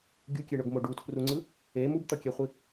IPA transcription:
ɡʲukʲeɳoɡmo ɖutʰruŋ͡ǀɯ | e mubt̪ʌkʲɛχʷi

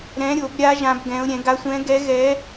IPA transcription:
ɾɛ̃˧˥ɾʲo˨˩˦bɾʲa˧˥ ʒã˧˥bɡɛ̃˧˥ʊ̯ ɾʲɛ̃˨˩˦ɡa˧˥sʷɛ̃˧˥ɡɛ˧˥ ɣɛ˧˥

